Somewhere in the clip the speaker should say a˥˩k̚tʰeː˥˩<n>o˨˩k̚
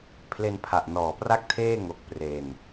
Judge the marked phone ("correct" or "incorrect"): incorrect